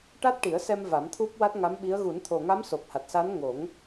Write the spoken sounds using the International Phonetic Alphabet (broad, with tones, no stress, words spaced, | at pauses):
ʈa˦˥t̚ʈi˨˩˦ə̯ sɛ˧m va˨˩˦mt̪ʰu˦˥p̚wa˦˥t̚ ŋa˧˥mɓi˧˥ə̯ ɣu˨˩˦nt̪ʰo˨˩ŋa˧˥m so˨˩p̚ha˨˩t̚sa˧˥nŋo˨˩˦ŋ